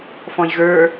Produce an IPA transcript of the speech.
f ɔ̃ j ɣ ə˞

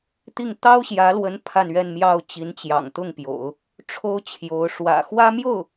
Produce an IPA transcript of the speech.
t̪ i˥˩ ŋ t̪ ɑ˥ ʊ̯ ɕ j ä˧˥ l w ə˧˥ n pʰ a˥˧ n ɥ ɛ˥˧ n m j ɑ˥˩ ʊ̯ t͡ɕ i˧˥ n t͡ɕ j ɑ̰˨˩ ŋ t̪ ʊ˥˩ ŋ p j o̰˨˩˦ ʊ̯ | ʈ͡ʂʰ o˥ ʊ̯ t͡ɕʰ j o˧˥ ʊ̯ ʂ w ä̰˨˩ x w ä˥ m j o˥˩ ʊ̯

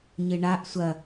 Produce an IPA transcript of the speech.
ɲ ɨ ɳ a ʔ sʷ ɐ

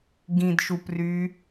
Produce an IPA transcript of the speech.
ɡ ĩ d ʃ u p r y

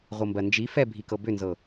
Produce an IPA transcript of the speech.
ʁʷ ɤ m b ɜ n d͡ʒ i f ɛ bʱ i k ɤ b ʏ n z ɤ

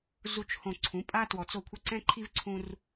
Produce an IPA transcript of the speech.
z u˨ t͡ʃ h õ˨ ǀʰ ũ˨˦ pʼ a˦ t w ɔ˨ t͡s o˦˨ kʷʰ ɤ˦ ǀ ɛ̃˦ ǃʰ i˦ v ǀʰ ũ˦ r

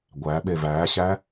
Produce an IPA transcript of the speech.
ɡʷ æ ɓ e v æ ɕ æ

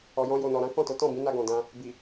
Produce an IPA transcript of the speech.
ɔ˨ j ɔ̃˧ j o˨ n ɔ˨ ɾ ã˨˦ k ɔ̃˦˨ t o˨˦ t ɔ̃˦˨ b ĩ˨˦ n a˧ ɡ ɔ̃˨ d ã˧ | b i˨

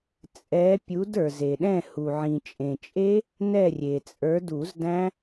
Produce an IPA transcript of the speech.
t͡sʼ ɛ˨˦ pʲ u˨˦ d ə˞˩ z e˩ ɗ ɛ̃˦˨ h u˩ ʕ ĩ˩ t͡ʃʼ ẽ˩ t͡ʃʼ e˦˥ | n ɛ˦˨ rʲ e˩ t͡sʼ ə˞˨˦ d u˨˩˦ z d æ̃˦˥

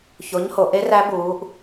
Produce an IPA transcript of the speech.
ç o˨˥ ɲ h o˩˧ ʔ e˦˥ r æ˦˥ b uː˩˧ ʔ

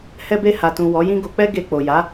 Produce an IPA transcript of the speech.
h ɛ˧ b e˧ h a˨ t ũ˨ w ɔ˨˦ j ĩ˦ ɡ o˧ k͡p ɛ˦ ɡ e˧ k͡p o˨ j a˨˦

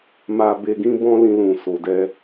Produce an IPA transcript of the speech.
m a˧ b e˧ ɡ ĩ˦ b ɔ̃˦ l ĩ˧ l ũ˨ s o˨ d ɛ˧

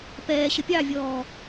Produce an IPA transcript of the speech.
p ɛː ɕ ə pʲ ɑ vʲ ɔː

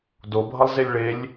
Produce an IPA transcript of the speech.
d o bʱ ʌ lˠ z e lʲ ɭ e lʲ

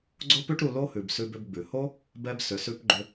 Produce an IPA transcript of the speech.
ɡ͡ǀ o˦ p ʉ˦ ʈ ɾ u˧ l o˦ h ʉ˨ b s ʉ˧ b ʏ˧ b ɡ͡b ʉ˨ h o˦ | b ɛ˧ b s ʏ˨ s ʉ˧ p ɡ͡ǃ ʏ˧

